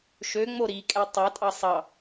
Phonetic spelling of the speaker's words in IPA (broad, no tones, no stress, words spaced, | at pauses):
ʃø ŋ͡moɾikʼɛ tˤɑtʼɑ sˤɑ